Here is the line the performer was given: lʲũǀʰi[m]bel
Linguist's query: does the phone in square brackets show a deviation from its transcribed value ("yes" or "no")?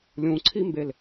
no